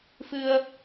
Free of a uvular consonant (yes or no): yes